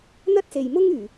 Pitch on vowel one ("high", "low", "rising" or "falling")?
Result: high